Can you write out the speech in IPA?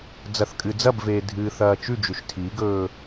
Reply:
d͡z ɐ θ kʼ ɨ d͡z ɐ b v eː dʱ ɨː θ ɐː t͡ʃ ʉ d͡ʒ ʉ ʃ tʰ i ɡ ɵː

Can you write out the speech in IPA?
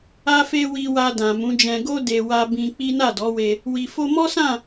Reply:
a˦ f e˦ w i˧ w a˧ d ã˨ m ũ˨˦ d͡ʒ ɛ̃˧ ɡ o˦ d e˧ w a˦ b ĩ˧ k͡p i˦ n a˦˨ d ɔ˨˦ w e˧ | w i˨ f o˧ m ɔ˦ s ã˦˨

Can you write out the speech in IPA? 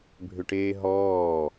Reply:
bʱ ʏ ʈ eː ɦ ɔː

